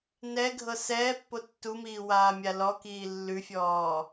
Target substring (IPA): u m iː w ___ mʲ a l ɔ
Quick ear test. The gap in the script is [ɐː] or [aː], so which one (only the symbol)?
aː